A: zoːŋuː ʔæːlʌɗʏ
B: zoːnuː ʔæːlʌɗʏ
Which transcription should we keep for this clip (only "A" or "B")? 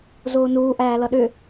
B